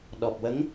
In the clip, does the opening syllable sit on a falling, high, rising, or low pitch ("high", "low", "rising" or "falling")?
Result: low